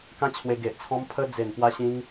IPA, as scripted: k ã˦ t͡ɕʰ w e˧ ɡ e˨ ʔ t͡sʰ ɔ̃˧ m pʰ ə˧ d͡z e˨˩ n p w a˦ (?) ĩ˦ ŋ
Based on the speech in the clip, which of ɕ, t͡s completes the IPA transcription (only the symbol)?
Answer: ɕ